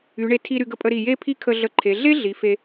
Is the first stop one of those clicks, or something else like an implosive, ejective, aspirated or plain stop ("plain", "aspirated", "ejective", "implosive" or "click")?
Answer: aspirated